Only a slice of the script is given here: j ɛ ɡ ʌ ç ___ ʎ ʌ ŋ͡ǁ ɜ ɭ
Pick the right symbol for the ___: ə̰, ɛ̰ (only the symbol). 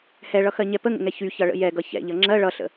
ɛ̰